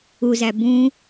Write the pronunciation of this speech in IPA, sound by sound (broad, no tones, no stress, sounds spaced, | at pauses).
u z æ b ũ